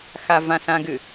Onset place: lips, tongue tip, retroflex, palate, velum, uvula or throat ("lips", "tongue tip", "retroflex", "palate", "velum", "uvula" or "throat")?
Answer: velum